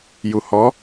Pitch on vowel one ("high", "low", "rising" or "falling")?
low